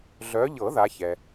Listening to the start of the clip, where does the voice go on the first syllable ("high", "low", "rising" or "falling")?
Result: rising